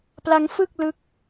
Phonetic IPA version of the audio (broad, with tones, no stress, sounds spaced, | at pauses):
p l a˦˥ ŋ f ɯ˥˩ k̚ l ɯ˦˥ k̚